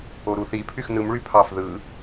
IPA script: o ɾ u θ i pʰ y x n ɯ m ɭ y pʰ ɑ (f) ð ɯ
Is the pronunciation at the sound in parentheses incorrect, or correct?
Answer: correct